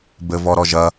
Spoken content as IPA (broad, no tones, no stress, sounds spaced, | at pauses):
b ɘ v ɔ ɾ ɔ ʒ ɐ